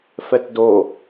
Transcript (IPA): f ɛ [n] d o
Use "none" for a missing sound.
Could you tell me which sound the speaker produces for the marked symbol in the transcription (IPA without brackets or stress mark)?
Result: t